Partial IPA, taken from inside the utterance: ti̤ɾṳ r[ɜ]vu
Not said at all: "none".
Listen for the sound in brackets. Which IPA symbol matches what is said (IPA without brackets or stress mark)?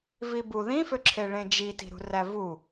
æ